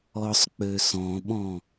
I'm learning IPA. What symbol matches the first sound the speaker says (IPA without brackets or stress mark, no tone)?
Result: ɔ